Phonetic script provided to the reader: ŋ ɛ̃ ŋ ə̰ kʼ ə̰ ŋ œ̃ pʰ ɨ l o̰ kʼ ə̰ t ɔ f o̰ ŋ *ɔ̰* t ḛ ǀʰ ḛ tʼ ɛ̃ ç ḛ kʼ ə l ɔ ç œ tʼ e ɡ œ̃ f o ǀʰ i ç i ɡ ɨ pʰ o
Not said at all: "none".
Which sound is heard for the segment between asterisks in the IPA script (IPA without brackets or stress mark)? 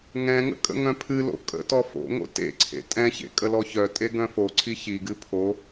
o̰